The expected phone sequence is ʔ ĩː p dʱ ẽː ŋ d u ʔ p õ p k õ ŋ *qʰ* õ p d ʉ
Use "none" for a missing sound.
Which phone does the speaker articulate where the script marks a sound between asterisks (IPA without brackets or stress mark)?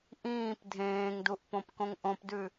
ʔ